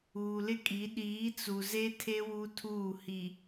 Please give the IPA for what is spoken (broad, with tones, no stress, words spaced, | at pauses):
uː˨lɪ˦kʼi˨˦ ɗiː˨˦t͡su˨ze˦tʰe˦ wu˦tʰuː˦˨ hi˨